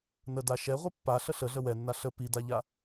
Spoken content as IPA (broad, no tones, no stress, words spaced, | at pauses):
nəda ʃɛ ʁʷipːaɬə ɬəɮə wɛnːa ɬə pidaʎa